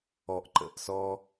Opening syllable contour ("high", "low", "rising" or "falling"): low